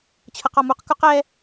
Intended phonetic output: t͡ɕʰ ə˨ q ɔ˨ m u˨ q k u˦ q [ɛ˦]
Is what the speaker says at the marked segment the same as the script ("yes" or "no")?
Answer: yes